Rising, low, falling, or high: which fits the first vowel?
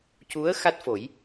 rising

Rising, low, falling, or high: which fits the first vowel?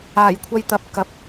low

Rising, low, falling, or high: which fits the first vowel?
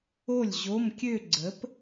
falling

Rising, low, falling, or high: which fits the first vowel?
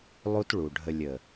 high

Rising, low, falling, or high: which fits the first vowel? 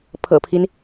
low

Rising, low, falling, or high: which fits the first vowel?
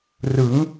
rising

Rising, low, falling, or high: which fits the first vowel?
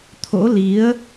rising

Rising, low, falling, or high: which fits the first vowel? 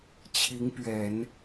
rising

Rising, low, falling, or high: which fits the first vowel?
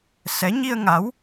rising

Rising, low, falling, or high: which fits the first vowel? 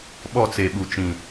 falling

